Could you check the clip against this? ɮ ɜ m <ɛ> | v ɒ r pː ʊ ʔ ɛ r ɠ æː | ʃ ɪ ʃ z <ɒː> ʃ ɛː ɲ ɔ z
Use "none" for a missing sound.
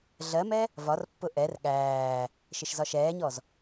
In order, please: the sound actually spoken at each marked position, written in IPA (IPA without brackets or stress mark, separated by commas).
ɛ, ɒ